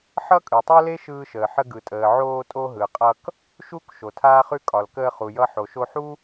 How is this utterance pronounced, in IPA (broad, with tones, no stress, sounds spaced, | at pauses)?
ħ ʌ˥ kʼ ɯ˩ tˤ o˥ l e˥ ʃ ɯː˧ ʃ əː˩ ħ ə˧ ɡ ɯ˩ tʼ əː˩ ʕ oː˧ tʼ o˧ ɦ ɯ˩ qʼ ʌ˧ k | ʃ u˥ k ʃ o˩ tʰ aː˥ χ ʉ˥ kʼ ɒ˩ l k əː˧ χ u˩ j ʌ˧ ħ o˩ ʃ o˧ ħ u˥